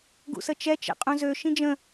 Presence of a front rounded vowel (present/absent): present